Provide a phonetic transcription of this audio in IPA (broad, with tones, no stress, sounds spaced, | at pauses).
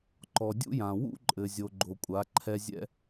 ǃ ɔ˨ dʲ ṵ˦ j ã˨ w ṵ˦ ǃʼ ɘ˨ zʲ o˨ ɡ͡ǃ o˨ kʷʼ a˨˦ ǃʰ ɛ˦ zʲ ɛ̰˦